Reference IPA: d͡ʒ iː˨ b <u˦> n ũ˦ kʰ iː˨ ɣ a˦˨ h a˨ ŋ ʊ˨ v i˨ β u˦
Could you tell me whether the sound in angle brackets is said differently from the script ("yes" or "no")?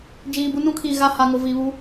no